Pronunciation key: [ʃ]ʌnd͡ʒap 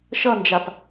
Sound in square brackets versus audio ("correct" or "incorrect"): correct